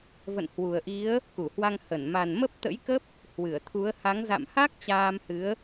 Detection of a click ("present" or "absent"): absent